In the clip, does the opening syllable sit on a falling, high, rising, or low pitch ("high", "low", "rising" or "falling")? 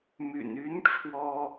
low